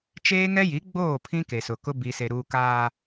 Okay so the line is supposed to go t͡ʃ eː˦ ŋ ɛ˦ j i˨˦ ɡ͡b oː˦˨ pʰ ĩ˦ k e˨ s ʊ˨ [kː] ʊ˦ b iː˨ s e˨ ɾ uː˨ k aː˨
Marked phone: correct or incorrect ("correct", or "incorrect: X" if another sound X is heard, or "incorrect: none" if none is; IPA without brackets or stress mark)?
incorrect: k